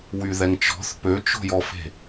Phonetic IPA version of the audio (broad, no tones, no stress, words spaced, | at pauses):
wyðɛŋt͡ʃɔ̤θ pøt͡ʃo̤jɔfe̤